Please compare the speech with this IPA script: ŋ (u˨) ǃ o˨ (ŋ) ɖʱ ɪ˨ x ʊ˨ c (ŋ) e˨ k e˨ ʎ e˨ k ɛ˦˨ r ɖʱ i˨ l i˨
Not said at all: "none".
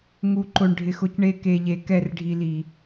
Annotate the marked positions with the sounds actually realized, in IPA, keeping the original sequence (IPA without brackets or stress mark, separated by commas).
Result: u˨, ɳ, ɳ